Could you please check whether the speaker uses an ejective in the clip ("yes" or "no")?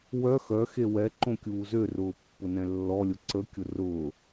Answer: no